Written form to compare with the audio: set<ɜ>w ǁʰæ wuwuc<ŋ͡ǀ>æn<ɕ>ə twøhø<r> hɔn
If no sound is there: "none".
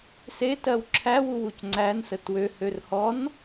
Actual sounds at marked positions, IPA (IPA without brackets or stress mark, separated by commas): ɜ, ŋ͡ǀ, s, r